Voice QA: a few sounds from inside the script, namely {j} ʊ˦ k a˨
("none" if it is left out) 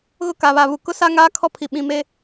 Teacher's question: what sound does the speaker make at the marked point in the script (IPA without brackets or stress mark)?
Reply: ɣ